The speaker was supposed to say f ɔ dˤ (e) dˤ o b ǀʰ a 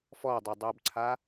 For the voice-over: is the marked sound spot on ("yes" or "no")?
yes